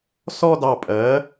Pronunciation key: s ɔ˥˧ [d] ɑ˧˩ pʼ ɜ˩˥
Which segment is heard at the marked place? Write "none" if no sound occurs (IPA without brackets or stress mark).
d